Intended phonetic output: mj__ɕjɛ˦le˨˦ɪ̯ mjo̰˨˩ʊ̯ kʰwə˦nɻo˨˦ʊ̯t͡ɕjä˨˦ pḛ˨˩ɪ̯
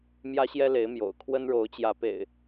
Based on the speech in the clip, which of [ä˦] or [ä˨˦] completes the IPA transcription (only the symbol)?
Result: ä˦